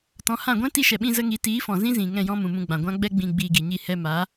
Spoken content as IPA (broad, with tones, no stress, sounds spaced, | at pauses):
t ɔ̃˨˦ h ã˦˨ ɡʷ ɛ̃˦ t i˧ ʃ ɛ˨ ɓ ĩ˧ z ə˧ ŋ i˨˦ t iː˨˦ f ɔ̃˨ z ĩ˦ z ĩ˨ ŋ ɛ̃˦˨ j ɔ̃˦ m ũ˨ m ũ˧ ɡ͡b ã˨ ɡʷ ã˦ ɡ͡b ɛ˦ ɡ͡b ĩ˧ ɡ͡b iː˧ ɡ i˨ ɲ i˦˨ h ɛ˧ m a˨˦